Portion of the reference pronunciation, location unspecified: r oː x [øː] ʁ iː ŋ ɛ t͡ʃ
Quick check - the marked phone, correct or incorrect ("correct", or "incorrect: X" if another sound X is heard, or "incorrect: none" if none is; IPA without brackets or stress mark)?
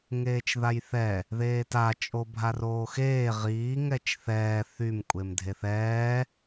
incorrect: eː